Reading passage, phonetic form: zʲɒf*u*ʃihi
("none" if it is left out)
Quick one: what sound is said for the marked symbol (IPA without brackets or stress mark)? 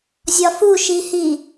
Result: u